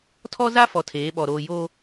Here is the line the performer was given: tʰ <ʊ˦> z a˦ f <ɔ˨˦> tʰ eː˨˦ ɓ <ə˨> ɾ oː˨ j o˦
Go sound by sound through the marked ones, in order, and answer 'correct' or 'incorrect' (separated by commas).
incorrect, incorrect, incorrect